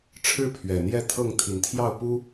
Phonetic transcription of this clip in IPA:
ʈ͡ʂʰ ɻ̩˦ pʰ ɥ ɛ˨˩ n̪ j ɛ˥˨ t̪ʰ ɤ˥˨ ŋ t̪ʰ i˨˩ n t̪ʰ j ɑ˥˨ ʊ̯ p u˦

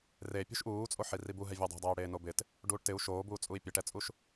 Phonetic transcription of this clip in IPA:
r e pʲ ṳ ʃ ʔ uː t͡sʼ o ħ i r i b u ɦ ɛ vʲ u dˤ ɛ̤ dˤ eː i̯ ɽ eː n o b ɪ t | ɖ uː ʈ t ɪ u̯ ʃ oː b uː t͡sʼ u i̯ pʲ ɛ ʈ ɛ t͡sʼ u ʃ

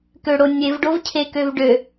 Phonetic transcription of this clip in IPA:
k ø ɽ o nʲ e v ɖ o v cʰ e k ø v ɖ ø

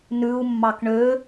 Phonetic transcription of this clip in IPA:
n ʉ u̯ mː ɑ k ɳ ø

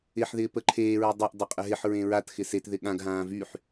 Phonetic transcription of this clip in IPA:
ɪ ħ ð ɪː p ə ǃʰ eː ɹ ø dˤ e ʔ dˤ ɐ qʼ ə ɦ ɪ ħ ɹ ẽ ɹ a t x ɪ s e t ð ɪ ɠ ã ɡ ɦ ãː v y ħ

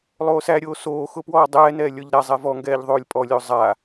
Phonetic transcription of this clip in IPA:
lˠ oː s æ ɾʲ oː s oː x ʊ p w ɔː dˤ ɛː n ɛː lʲ ɔ ʎ ɾ a zˤ ɛ v ɔ ŋ ɡ ɛː ʎ ðˤ oː lʲ pʼ ɔ lʲ o zˤ a

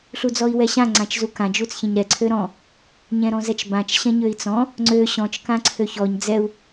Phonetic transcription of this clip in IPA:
ɬ u d͡z ɔ i̯ w ɛ ɕ ã ŋ͡ǀ ã t͡ʃ z u k ã d͡ʒ u t͡s ç ɛ̃ ɲ ɾ ɛ ǀʰ ø ɾ ɔ̃ | ɲ ɛ̃ ɾ ɔ̃ z ɛ t͡ʃ b ã t͡ʃ ɕ ɛ̃ ɲ ø i̯ t͡s ɔ̃ | ŋ͡ǀ ø ɕ ɔ̃ t͡ʃ k ã ǀʰ ø ç ɔ ɲ d͡z ɛ u̯

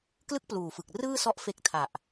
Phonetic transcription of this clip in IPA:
k l ɯ˥˩ k̚ p l uː˨˩ f ɯ˨˩ k̚ r ɯː˥˩ s ɔ˦˥ ʔ f e˦˥ k̚ tʰ a˨˩ ʔ

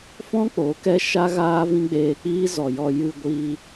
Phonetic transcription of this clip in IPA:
f ɔ̃˦ k͡p o˨˦ k ɛ˦ ʃ a˦ ɣ aː˦ v ĩ˦ ɡ͡b eː˧ k͡p iː˦ z ɔ˨ j ɔ˧ j ɨ˧ ɡʷ iː˧

